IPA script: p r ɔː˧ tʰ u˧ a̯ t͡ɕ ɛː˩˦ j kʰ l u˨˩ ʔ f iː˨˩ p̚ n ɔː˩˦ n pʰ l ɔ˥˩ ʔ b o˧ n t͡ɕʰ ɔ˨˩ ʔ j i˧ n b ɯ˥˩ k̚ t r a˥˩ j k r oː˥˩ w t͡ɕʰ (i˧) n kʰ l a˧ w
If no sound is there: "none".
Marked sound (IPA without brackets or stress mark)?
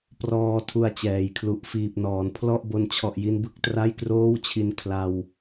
i˧